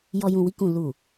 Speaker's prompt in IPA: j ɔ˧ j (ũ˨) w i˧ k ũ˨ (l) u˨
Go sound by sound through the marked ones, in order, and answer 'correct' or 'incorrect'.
correct, correct

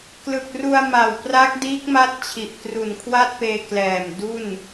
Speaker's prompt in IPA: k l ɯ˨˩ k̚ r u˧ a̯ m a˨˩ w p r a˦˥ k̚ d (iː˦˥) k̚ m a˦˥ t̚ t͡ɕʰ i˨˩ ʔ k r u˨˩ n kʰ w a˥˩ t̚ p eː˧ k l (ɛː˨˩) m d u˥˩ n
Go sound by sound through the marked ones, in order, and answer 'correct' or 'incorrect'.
correct, correct

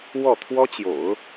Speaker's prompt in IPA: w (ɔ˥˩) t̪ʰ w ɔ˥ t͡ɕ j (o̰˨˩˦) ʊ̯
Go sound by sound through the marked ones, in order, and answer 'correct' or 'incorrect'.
correct, correct

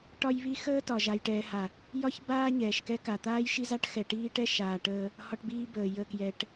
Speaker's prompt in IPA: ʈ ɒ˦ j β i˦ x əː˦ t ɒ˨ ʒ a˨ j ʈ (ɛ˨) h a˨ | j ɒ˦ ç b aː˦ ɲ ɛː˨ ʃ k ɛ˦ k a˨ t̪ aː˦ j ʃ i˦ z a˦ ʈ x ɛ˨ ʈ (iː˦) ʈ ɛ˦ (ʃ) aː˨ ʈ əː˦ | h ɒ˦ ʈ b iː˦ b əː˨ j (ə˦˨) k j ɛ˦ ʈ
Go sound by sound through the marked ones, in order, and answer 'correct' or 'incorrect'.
incorrect: ɛː˨, correct, correct, correct

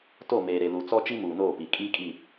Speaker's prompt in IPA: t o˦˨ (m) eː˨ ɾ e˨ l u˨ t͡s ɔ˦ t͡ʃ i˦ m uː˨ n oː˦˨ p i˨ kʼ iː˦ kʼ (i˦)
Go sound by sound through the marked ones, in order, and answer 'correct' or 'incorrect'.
correct, incorrect: i˦˨

